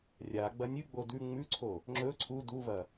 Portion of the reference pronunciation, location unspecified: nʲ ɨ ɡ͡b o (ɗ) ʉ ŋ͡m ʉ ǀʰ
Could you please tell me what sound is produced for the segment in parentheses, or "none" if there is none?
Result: d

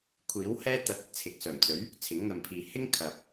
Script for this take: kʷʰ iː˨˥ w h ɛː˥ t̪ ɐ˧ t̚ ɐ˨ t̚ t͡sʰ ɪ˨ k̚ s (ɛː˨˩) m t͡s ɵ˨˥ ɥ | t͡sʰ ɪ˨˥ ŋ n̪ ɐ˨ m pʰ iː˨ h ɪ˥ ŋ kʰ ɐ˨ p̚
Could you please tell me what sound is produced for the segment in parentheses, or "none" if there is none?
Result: œː˨˩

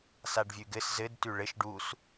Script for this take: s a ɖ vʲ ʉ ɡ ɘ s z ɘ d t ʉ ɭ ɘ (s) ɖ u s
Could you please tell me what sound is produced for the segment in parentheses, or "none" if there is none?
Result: ʃ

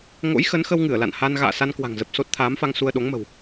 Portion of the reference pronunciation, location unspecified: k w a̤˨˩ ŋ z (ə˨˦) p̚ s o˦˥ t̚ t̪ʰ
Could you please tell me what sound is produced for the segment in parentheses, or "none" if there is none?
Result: ə˨˩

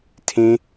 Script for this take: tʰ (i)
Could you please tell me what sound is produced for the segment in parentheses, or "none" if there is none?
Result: ĩ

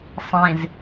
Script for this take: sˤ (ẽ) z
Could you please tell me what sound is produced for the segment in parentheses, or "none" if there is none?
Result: ẽ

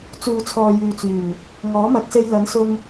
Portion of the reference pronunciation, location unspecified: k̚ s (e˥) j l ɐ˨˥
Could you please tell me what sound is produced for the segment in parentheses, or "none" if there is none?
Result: e˧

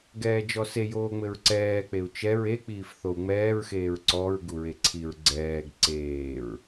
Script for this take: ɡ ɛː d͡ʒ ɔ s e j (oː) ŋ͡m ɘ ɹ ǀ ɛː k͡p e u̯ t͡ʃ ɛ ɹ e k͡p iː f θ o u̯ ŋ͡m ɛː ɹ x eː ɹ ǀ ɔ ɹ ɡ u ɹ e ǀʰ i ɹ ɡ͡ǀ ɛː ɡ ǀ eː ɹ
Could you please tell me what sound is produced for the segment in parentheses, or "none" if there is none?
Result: oː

